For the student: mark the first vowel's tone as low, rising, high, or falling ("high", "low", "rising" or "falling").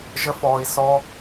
high